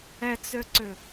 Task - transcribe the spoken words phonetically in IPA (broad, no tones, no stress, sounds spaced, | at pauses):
ɛ t͡s ø ǀ ʏ